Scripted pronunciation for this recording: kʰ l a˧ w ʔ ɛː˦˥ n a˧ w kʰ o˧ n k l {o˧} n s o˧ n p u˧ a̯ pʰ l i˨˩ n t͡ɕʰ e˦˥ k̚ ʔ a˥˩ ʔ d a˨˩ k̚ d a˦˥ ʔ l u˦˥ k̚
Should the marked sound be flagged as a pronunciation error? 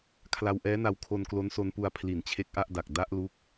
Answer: yes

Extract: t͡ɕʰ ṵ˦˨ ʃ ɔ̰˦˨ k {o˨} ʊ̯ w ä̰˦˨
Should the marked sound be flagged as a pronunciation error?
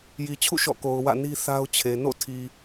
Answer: no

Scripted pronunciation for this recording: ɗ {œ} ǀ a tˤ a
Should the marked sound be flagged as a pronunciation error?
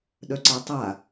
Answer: no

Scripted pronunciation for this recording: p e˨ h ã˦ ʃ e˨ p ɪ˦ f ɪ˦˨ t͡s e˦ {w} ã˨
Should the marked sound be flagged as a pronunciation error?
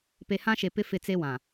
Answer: no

